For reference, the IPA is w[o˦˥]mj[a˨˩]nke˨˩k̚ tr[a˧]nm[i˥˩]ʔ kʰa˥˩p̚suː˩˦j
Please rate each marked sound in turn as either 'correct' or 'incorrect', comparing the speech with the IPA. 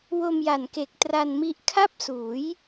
incorrect, correct, correct, incorrect

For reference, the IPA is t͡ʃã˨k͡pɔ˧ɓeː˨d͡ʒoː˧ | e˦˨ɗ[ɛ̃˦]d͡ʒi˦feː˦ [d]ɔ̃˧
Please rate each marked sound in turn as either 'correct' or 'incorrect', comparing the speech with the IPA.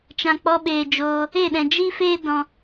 incorrect, correct

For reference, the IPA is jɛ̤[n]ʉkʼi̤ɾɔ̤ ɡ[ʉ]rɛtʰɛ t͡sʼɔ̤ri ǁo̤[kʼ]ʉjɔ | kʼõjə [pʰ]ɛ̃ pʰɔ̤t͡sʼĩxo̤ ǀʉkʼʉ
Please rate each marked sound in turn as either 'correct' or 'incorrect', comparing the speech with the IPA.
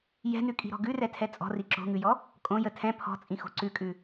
correct, correct, incorrect, incorrect

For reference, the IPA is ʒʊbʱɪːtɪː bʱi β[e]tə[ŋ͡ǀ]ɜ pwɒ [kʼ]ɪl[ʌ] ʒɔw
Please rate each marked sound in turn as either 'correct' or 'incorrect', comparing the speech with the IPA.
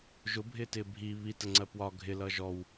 incorrect, correct, incorrect, correct

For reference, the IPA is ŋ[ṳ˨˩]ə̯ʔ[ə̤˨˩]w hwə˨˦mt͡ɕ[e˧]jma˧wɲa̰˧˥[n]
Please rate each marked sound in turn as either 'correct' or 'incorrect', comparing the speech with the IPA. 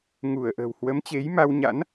incorrect, correct, incorrect, correct

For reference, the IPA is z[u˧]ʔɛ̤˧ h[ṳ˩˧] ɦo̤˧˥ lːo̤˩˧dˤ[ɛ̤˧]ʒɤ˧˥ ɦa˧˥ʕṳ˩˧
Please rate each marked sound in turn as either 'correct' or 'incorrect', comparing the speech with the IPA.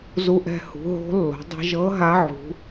correct, correct, incorrect

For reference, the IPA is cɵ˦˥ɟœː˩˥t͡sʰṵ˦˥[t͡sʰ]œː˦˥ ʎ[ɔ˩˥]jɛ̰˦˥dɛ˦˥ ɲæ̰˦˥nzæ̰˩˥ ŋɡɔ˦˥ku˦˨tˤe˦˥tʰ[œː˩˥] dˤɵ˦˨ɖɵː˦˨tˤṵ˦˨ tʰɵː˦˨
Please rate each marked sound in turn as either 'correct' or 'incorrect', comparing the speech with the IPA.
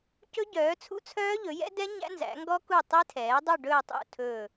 correct, incorrect, incorrect

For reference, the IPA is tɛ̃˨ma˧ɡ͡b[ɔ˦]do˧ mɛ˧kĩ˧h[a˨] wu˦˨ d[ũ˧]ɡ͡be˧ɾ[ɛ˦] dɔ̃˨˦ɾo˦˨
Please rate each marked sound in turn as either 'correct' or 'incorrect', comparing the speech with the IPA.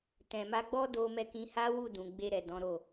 correct, incorrect, incorrect, incorrect

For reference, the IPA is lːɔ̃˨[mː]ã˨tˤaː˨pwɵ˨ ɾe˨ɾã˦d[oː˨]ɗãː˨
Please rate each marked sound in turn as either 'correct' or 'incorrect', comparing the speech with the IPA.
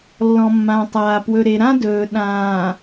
correct, incorrect

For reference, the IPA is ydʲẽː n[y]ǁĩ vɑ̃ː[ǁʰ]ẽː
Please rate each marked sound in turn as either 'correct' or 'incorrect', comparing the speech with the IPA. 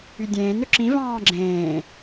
incorrect, incorrect

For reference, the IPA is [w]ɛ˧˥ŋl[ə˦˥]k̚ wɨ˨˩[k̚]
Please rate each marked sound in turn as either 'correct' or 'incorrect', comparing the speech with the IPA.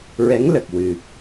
incorrect, incorrect, correct

